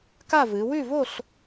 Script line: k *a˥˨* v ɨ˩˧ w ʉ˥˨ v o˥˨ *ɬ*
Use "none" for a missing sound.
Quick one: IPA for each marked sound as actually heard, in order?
a˥˨, ɬ

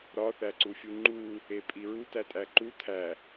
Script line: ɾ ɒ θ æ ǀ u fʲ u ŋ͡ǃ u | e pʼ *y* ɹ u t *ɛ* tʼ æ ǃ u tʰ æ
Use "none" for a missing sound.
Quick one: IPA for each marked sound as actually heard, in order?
i, æ

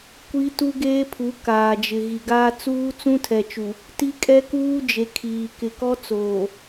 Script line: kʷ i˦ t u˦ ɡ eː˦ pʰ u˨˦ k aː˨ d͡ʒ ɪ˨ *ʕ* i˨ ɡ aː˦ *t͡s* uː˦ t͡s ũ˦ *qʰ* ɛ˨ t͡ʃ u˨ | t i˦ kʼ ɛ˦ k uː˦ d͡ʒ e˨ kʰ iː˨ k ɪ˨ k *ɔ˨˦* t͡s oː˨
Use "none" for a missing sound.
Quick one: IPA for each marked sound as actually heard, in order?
ɣ, t͡s, tʰ, ɔ˦

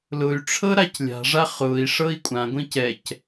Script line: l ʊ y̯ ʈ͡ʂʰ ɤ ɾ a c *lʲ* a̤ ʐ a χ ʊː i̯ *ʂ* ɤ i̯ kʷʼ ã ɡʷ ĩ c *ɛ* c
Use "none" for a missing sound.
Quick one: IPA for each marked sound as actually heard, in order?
lʲ, ʂ, ɛ

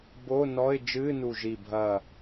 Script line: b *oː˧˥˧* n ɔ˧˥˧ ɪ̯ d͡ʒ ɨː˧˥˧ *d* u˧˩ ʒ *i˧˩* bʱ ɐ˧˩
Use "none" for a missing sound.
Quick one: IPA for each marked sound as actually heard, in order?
oː˧˥˧, n, i˧˩

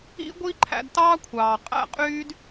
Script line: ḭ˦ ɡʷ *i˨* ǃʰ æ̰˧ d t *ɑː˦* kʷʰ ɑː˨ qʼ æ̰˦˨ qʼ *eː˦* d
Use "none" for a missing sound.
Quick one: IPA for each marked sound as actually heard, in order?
i˦, ɑː˦, yː˦

